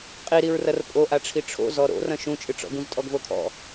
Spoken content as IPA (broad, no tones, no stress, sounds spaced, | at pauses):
qʼ i ɾ i ɹ r ɐ r pʼ o ʔ a ʈ͡ʂʰ i ʈ͡ʂʰ o̰ z ɔ ɾ o̰ r ɐ̃ ʃ ũ t͡ʃʼ ɨ ʈ͡ʂ ɔ̰ ɡ ũ z tʼ ɔ ɡ v o kʰ ɔ̰